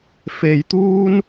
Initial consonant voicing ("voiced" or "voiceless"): voiceless